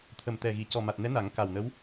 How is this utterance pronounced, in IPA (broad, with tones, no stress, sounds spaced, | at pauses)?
t̪ʰ ə˨˩ m t̪ ɛ˨˩ ɣ i˨˩˨ c ɔ˨˩ m a˨˩ t̚ n ɛ˧˥ n a˨˩˦ ŋ k a˨˩ w n ə˧˥ w